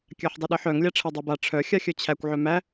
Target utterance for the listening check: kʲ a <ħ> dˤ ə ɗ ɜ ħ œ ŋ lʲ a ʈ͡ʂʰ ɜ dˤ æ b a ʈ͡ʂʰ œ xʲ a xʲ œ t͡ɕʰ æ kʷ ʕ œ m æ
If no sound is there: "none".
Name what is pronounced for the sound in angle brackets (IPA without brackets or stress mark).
ħ